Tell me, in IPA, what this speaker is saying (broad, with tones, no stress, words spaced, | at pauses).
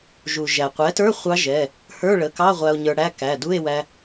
ʒu˩ ʒæ˩qʷɛ˩˥tə˞˧˥˧ χʷɑ˧˥ ʒɛ˩˧˩ | hə˞˧˥˧ɭə˩˧˩kɑ˧˥˧ ʁʷæ˧o̯ɲə˞˧ɽæ˧˥˧ kæ˩˧˩du˧˥˧e̯wæ˧